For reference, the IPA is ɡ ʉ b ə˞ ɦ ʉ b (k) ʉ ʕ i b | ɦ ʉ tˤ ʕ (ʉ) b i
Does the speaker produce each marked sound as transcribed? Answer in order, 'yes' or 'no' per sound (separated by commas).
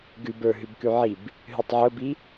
yes, no